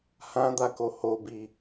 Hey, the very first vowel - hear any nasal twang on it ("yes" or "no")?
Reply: yes